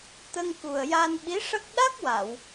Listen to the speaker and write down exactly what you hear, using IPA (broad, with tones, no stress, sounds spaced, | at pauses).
t̪ ə˧ ŋ k u˨˩ ə̯ j a˧ n ɓ i˧˥ ʂ ə˦˥ k̚ ɗ a˦˥ k̚ w a˨˩˨ w